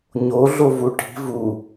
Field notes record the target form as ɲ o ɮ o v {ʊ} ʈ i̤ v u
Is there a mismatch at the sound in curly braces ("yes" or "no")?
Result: yes